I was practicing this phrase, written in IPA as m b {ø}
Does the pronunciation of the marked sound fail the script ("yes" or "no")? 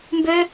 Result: no